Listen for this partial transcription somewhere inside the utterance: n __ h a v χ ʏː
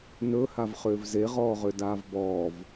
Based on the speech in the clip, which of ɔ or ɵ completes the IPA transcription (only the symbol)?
ɵ